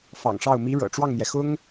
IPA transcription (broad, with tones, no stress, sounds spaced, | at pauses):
f ɑ̰˨˩ ŋ ʂ ɑ˥˩ ʊ̯ m i˧˥ ɻ ɤ̰˨˩ ʈ͡ʂ w ɑ˥˩ ŋ n̪ j ɛ˩ x ʊ˥ ŋ